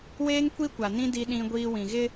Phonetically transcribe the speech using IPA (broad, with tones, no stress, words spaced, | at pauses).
weː˦ŋkʷi˦kʷa˨nĩ˦ di˦ɗĩ˦ɡʷiː˦ wĩ˨ɣɪ˦